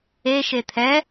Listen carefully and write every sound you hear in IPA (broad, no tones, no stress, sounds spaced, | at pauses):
e ʃ e t̪ʰ ɛ